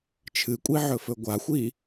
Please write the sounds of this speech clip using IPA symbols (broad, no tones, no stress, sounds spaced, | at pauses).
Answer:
t͡ʃʰ ɨ kʷʼ i ʕ ɵ f ɵ ɡʷ a xʷ i